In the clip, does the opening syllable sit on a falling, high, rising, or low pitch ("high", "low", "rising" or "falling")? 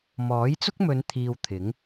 rising